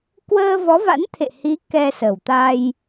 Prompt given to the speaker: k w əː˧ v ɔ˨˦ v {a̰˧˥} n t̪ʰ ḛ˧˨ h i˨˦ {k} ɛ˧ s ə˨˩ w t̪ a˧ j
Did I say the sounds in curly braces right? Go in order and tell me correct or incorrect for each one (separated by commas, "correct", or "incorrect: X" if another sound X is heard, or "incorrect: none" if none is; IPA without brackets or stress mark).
correct, correct